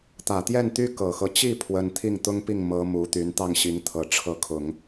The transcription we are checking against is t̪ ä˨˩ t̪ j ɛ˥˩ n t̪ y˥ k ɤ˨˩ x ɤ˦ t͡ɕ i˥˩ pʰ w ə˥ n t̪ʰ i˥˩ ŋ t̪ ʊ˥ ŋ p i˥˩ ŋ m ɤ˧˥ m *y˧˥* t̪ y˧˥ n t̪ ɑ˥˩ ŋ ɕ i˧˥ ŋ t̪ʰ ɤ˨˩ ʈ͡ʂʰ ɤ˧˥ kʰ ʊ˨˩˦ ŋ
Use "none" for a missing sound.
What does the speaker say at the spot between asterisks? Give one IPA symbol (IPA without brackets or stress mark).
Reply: u˧˥